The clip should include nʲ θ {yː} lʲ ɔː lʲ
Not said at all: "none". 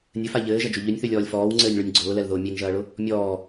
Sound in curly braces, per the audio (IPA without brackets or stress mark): y